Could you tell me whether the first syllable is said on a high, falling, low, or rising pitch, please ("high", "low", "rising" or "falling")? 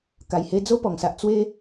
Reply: low